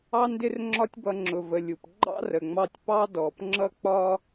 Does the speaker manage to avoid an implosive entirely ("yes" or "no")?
yes